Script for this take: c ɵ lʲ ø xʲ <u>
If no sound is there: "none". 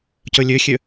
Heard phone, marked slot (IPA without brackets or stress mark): ø